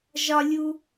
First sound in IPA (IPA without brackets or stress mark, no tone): ʒ